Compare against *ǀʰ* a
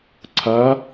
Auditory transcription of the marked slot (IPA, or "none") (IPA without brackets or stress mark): ǀʰ